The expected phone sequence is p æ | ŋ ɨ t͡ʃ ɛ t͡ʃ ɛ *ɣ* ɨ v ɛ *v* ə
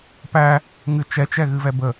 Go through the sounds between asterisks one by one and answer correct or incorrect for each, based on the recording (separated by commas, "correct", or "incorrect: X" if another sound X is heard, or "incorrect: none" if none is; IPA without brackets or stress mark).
correct, incorrect: b